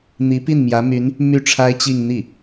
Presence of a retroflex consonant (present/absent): present